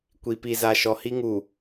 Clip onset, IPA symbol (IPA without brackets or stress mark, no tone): kʷ